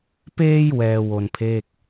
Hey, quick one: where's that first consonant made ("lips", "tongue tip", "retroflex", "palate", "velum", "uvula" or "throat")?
lips